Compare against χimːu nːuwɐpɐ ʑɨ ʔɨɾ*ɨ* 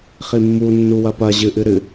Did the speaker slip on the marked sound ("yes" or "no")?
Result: no